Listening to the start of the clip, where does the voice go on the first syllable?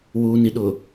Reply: low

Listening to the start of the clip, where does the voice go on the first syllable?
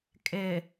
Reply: low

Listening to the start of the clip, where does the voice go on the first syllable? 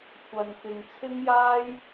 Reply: low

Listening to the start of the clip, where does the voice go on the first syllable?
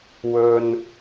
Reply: low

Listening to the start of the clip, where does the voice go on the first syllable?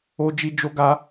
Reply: high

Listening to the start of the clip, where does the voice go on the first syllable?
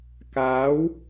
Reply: rising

